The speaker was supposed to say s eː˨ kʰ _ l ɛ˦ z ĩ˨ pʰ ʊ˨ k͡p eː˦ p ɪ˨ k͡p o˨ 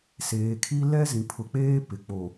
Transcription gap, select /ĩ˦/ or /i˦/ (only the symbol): i˦